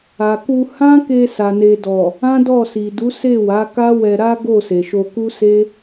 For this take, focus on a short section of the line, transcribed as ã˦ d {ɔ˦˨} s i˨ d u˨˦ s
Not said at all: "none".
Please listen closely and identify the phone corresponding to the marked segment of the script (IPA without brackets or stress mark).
ɔ˦˨